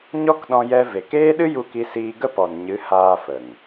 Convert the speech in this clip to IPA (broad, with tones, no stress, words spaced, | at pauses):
ɲɔ˦kɗɔ̃˧jɛ˧ ve˨keː˦ɗɨ˦ ju˧ki˧siː˧ ɡə˦pɔ˨nɲɨ˨˦ haː˧fə˨ŋ